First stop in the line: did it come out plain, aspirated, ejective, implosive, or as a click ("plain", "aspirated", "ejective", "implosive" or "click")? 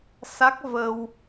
plain